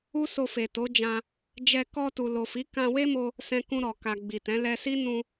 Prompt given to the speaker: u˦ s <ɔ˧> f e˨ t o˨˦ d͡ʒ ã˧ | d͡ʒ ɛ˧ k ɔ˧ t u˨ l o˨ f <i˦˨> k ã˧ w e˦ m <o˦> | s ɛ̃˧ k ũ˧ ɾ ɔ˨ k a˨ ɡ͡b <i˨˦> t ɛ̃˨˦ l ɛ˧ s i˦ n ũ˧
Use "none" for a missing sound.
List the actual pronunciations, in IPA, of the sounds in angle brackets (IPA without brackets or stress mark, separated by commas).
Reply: o˧, i˨˦, o˧, i˨